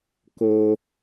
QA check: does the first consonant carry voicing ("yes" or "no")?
no